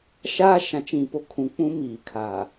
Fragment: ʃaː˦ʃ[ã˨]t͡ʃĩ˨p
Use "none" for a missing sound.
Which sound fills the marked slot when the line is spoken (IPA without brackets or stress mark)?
ã˨